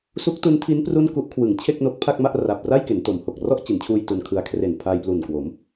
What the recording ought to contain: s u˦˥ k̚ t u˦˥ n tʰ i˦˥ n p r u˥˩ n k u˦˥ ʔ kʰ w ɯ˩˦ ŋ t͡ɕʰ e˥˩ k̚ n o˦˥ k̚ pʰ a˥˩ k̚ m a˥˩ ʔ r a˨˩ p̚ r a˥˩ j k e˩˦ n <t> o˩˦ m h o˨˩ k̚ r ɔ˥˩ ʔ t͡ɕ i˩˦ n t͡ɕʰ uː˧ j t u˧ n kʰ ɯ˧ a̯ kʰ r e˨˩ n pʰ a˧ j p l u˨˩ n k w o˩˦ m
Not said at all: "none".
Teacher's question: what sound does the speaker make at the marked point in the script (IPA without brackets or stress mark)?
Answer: t